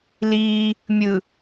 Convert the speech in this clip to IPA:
liː | mʲɯ

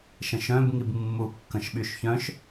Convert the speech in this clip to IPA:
ʃə̃ʃœ̃b ŋibmːu kːə̃ʃɓyʃçœ̃ʃ

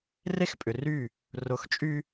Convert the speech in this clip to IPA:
re˦xpʼʏ˨ry˦˨ | rʊ˨˦xt͡ʃʼy˦

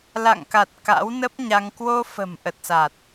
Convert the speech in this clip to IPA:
la̰˧˨ŋka˨˩t̚ ka̰˧˥wnə˦˥p̚ɲa˧ŋ kwo˧fə̤˨˩m ʔə˨˩t̚sa˨˩t̚

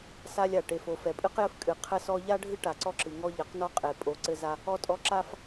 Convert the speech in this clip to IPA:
sa˦lʲa˨ ʈe˨fo˨ fɛ˨pʼɨ˦qjɘ˦f kʼɨ˨ qʰɘ˦sɔ˦ ʎa˦ɖʱɨ˦ ʈa˨ǀɔ˦ǁɨ˨ŋɔ˦ ʎɘ˨˦qnɔ˦ qʼe˨pʼo˨ǀɘ˦˨ za˦ | ɔ˦tʼɔ˦ ǁa˦f

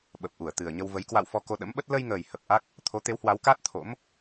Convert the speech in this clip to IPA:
ɓə˨˩p̚ʔu˧˩ə̯t̪ɨ˨˩ə̯ɲə˧w və˨˦j kwa̰˧˨w fɔ˧ko˧ɗə̰˧˥mɓə˦˥t̚ lə˧jŋəː˨˩jhə˨˩p̚ ʔa˦˥k̚ | t̪ʰo˨˦t̪e˨˦whwa˨˦wkaː˦˥t̚ t̪ʰo̰˧˥m

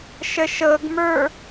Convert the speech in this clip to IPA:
ʃəʃɤɡmə˞

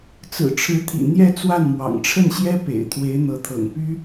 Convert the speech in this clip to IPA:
t͡sɹ̩˨˩ʈ͡ʂʰɻ̩˧˥t̪ʰḭ˨˩ n̪jɛ˥˧ t͡swa˥˩nmwɑ̰˨˩ŋ ʈ͡ʂʰə˥˩nɕjɛ˥ pḛ˨˩ɪ̯t̪ʰwe˧˥ɪ̯ n̪ɤ˧˥t̪ʰɤ̰˨˩ŋpy˥

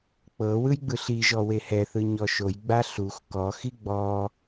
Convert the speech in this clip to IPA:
k͡pɤ wɯjɡ͡bɯɬiʒɔ wehɛθɯ ɲɔʃojɡ͡ba ɬux kɔxi ɡ͡bɔ

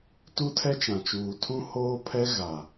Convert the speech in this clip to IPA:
tu˦tʰɛ˦t͡ʃã˨t͡ʃuː˨ tʰũ˦hoː˦pʰɛ˦ ɣa˨

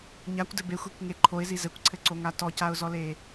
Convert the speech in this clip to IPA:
ɲakʷdɘ bexʷikŋe ǃʰoɪ̯zi zɘkʷǀʰɘǀoŋa tɔcaʊ̯zɔle

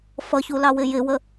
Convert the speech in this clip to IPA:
fʌçulɑwɪ jɪwə

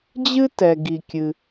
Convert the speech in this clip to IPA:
d͡ʑɨ˥tɛ˩ ɡi˩kʲɨ˩

